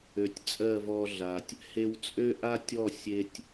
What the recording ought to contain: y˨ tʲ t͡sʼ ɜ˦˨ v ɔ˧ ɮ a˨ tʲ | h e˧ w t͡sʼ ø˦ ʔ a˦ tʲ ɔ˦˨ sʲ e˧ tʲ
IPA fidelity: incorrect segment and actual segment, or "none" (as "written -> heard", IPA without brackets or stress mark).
y˨ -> ø˨